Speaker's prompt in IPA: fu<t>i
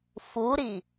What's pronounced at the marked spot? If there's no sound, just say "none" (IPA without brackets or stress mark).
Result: ɾ